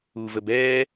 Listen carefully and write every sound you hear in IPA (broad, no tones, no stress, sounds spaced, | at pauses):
u v ə b ɛ